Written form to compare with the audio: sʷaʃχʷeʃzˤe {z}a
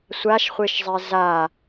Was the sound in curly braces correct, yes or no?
yes